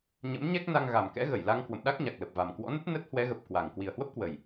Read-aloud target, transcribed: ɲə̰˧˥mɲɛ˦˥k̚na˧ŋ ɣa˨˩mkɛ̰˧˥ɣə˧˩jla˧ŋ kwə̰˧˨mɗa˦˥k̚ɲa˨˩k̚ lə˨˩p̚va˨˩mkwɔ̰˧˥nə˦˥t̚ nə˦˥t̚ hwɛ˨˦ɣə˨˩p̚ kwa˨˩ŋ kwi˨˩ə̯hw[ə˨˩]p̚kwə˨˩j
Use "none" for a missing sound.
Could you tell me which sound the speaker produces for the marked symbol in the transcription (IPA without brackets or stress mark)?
ə˦˥